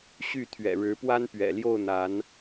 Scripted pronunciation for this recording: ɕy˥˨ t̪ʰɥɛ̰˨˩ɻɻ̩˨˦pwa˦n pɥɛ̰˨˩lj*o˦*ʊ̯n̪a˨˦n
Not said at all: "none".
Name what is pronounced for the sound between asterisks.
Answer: o˥˨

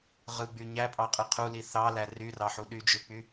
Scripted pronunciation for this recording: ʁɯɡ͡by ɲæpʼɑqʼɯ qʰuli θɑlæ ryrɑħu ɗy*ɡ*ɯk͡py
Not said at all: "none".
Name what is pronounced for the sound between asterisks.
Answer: d͡ʒ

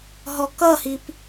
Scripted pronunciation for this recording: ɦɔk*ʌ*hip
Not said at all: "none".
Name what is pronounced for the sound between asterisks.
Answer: ʌ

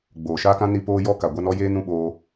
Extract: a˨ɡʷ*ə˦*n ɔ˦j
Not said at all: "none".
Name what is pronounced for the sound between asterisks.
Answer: a˦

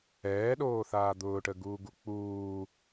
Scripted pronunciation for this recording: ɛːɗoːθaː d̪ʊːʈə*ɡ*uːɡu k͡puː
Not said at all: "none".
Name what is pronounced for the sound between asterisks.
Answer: ɡ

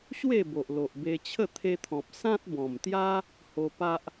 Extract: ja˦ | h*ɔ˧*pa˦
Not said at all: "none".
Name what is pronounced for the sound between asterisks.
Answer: o˧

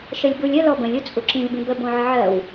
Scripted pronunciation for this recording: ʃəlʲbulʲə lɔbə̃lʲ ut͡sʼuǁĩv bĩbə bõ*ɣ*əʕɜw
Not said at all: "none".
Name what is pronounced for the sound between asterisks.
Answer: ʕ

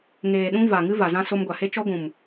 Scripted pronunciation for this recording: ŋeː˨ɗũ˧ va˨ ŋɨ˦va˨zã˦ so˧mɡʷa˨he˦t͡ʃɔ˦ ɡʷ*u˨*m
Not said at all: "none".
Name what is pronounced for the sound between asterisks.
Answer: ũ˨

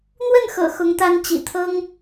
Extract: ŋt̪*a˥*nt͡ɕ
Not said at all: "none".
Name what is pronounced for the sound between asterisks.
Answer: a˥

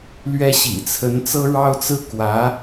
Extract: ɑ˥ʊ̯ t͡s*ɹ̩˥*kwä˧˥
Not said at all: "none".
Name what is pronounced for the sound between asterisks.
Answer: ɹ̩˥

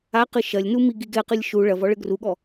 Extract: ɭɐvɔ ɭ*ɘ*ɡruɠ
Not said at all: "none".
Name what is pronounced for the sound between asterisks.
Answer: ɘ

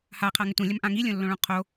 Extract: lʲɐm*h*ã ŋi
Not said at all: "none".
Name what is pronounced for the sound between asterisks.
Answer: ʔ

